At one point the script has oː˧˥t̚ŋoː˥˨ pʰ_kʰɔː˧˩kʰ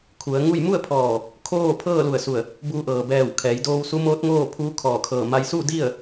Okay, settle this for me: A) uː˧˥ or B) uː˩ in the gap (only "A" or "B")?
A